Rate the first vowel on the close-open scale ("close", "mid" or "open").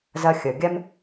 open